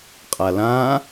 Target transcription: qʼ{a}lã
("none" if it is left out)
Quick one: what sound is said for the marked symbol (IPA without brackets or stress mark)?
a